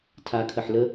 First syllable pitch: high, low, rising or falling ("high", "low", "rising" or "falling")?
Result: low